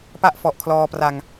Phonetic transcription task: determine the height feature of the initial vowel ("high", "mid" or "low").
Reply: low